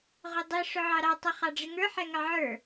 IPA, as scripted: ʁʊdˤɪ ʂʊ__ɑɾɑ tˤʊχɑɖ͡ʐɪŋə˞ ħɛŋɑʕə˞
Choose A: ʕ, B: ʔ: A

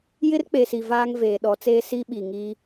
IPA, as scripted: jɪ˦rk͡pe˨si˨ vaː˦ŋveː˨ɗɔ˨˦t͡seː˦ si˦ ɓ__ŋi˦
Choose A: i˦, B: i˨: B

